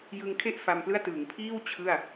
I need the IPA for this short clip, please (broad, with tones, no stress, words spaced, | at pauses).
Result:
jɯ˧ŋkʰe˥˩ʔ fa˧mplɯ˥˩a̯ tɯː˩˦ŋpʰiː˥˩w t͡ɕʰɯ˥˩a̯